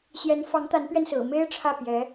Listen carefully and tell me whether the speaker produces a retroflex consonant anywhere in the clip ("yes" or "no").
yes